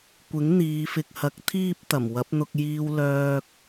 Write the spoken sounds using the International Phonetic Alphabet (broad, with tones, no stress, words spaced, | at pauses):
kʷɪ˨˥ŋn̪iː˨˧fɪ˨k̚hɐ˨˥k̚ t̪ʰiː˥p̚t̪ɐ˨˩m wɐ˨˥p̚n̪ʊ˧k̚ jiː˧w lœː˧k̚